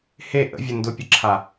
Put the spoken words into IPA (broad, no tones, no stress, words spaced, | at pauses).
he ʔə̰vʲə ndʊpʲəǁʰa